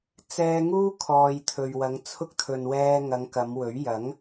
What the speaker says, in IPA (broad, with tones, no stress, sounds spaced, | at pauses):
t͡s ɛː˧ ŋ uː˥ kʰ ɔː˨ j t̪ʰ ɵ˨ ɥ w ɐ˨˧ ŋ t͡sʰ ʊ˥ k̚ t̪ʰ ɵ˨ n w ɛː˧ ŋ ɐ˨˧ ŋ k ɐ˨˧ m w ɵ˨˥ ɥ j ɐ˨˥ ŋ